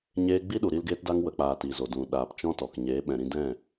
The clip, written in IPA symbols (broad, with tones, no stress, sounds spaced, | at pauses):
ɲ eː˦ ɡ͡b i˦ ɗ u˨ ɾ i˧ l ɡ eː˦ t d a˦ ŋ w ə˨ k͡p aː˨ t i˨ z o˨ d ũ˨ ɗ aː˨ p t͡ʃ ɔ̃˦ t ɔ˨ k ɲ eː˨˦ ɓ ɛ̃˨ ɾ ĩ˧ d ɛ̃˦˨